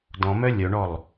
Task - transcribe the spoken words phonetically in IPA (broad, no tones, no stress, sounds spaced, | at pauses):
d ɔ̃ m œ lʲ œ ɳ ɔ lˠ